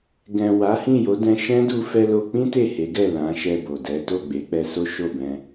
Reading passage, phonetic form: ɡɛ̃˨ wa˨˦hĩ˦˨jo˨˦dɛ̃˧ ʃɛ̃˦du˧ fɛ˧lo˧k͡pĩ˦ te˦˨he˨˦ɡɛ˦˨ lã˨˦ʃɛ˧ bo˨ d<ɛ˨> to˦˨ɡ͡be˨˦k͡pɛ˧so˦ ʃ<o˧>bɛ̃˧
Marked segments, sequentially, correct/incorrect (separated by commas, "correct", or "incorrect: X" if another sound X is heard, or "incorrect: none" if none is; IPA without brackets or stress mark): incorrect: ɛ˨˦, incorrect: o˦˨